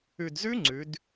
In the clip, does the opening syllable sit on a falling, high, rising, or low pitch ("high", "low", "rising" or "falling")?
low